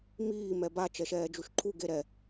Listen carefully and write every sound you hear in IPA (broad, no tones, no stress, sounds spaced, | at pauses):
m iː m ɛ b a t͡ʃ ɛ ʃ ɛː d͡ʒ u ʃ ǃʰ u ɡ e ɾ ɛ